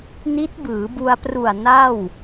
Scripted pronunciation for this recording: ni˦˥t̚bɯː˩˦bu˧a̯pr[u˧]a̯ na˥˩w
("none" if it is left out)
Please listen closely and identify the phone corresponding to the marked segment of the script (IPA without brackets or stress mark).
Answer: u˨˩